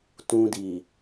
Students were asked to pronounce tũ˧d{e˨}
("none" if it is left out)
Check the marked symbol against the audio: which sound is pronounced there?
i˨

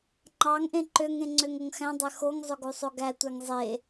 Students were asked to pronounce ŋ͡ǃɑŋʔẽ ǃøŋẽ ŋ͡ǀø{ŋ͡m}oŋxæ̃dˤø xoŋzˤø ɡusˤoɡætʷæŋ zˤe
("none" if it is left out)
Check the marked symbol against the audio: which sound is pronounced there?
ŋ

